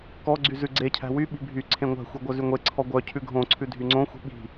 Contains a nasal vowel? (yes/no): yes